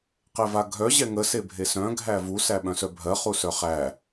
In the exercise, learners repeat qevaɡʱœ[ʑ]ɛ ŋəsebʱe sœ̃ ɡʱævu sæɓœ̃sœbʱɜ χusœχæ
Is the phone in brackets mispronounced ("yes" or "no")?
no